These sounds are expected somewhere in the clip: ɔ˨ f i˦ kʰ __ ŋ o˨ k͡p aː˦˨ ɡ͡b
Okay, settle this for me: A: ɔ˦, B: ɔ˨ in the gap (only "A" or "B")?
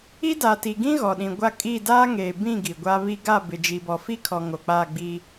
B